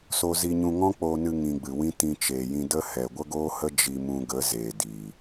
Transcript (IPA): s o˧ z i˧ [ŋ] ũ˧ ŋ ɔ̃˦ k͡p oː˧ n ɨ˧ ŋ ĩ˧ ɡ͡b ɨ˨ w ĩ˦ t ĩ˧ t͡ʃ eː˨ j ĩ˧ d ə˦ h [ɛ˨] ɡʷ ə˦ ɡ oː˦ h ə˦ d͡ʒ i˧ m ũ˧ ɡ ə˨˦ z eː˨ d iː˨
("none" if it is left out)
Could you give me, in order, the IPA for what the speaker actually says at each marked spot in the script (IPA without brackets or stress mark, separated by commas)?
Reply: ɲ, ɛ˨